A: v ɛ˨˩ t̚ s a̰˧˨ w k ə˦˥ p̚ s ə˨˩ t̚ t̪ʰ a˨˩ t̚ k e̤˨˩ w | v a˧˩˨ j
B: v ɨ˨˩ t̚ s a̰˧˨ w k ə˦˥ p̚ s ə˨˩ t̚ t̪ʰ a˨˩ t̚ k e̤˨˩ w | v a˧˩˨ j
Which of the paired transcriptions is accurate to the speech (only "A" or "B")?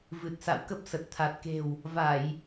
B